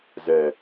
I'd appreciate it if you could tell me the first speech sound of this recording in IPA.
z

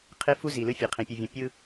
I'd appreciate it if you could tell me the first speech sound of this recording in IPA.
qʰ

